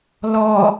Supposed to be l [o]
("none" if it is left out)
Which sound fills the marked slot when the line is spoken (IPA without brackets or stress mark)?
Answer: ɔ